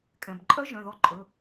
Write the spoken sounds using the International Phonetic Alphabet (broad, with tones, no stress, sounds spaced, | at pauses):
kʼ ɛ̃˩ b ǃʼ œ˦˥ ʒ œ̃˩˧˩ ð ɔ˦˨ ǃʼ ɵ˩˧˩